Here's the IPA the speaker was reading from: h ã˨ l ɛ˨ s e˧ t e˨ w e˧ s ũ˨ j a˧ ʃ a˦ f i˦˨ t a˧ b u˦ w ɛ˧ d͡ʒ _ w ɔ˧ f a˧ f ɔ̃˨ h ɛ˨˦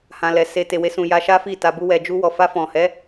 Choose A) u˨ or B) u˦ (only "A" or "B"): B